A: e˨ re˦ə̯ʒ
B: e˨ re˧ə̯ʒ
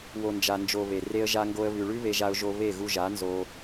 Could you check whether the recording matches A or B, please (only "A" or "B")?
B